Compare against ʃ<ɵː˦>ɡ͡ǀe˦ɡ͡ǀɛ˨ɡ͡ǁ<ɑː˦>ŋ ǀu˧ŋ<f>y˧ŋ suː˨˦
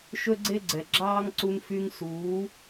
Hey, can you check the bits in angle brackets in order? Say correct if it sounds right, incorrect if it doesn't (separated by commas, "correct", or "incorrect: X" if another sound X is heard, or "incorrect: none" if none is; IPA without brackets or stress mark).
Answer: incorrect: ɵ˦, correct, correct